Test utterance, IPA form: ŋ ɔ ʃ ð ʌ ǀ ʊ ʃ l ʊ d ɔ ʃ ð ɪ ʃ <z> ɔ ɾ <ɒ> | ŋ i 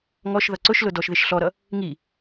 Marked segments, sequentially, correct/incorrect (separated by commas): incorrect, incorrect